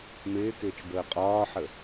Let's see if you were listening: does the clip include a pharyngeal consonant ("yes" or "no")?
yes